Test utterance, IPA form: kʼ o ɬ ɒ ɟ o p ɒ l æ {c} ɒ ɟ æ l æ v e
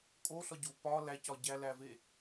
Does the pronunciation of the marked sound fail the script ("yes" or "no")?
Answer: no